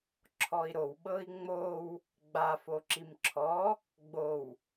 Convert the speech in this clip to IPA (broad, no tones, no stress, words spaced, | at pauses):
ǁʰɔi̯ɾowɓɤi̯ ŋ͡mow | ɡ͡ba foǁimǁʰɔ | ɡ͡bow